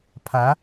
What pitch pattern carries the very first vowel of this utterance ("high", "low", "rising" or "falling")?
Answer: rising